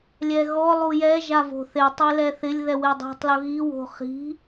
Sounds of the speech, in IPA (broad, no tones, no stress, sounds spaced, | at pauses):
lʲ ɛ ɣ ɔ lˠ u j ɛ ʒ a v o̤ θ e tˤ e l ɛ θ ɪ lʲ ð ɛ w e dˤ i̤ tˤ l ʊ ɣ i w o̤ χ i̤